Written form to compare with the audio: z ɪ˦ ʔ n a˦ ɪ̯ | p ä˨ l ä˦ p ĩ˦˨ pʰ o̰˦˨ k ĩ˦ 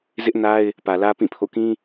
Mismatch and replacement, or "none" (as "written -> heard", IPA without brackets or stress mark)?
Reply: none